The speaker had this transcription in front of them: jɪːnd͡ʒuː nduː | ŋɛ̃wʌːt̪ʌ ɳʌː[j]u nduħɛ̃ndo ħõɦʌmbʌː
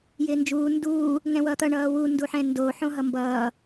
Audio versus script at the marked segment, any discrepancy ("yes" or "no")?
yes